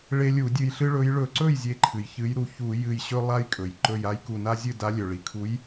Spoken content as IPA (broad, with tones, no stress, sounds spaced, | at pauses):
ɭ e˦ lʲ u˧˩˧ dʲ ɨ˧˩ j ɬ ɨ˦ ɭ ɵ˨˦ j ɭ ɵ˧˩˧ ǀ ɵ˥˩ j zʲ e˨˦ ǃʰ ɨ˩ j ç ɨ˨˦ j ɾ u˧˩ ç u˧˩˧ j ɨ˧˩ j ɕ ɵ˦ lˠ a˦ j kʼ ɵ˩ j ǃ ɵ˧˩ j a˦ j k u˧˩ n a˦ zʲ ɨ˥˩ d a˨˦ lʲ ɵ˩ ɭ i˩ kʰ u˨˦ j